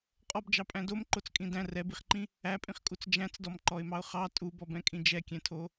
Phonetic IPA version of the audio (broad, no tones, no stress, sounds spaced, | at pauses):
qʼ ɔ b d͡ʒ ɑ pʼ æ̃ d o m ǃ o t͡s kʼ ĩ d æ̃ r ɛ b i χ ǃ ĩ | æ pʼ ĩ χ kʼ u t͡s d͡ʒ æ̃ t͡s d ɔ m ǃ ɔ ɪ̯ m ɑ ʊ̯ χ ɑ tʼ u b ɔ b ɛ̃ kʼ ĩ d͡ʒ ɛ kʲ ɛ̃ tʰ o